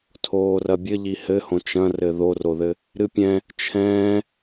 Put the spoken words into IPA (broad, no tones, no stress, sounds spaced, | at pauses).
tʰ oː r ɐ bʲ ɘ ʎ i h ɘ h õ t͡ʃ ɐ̃ r ɘ ð o r o ð ɘ | ɾ ɨ pʲ ɛ̃ | t͡ʃʰ ɛ̃ː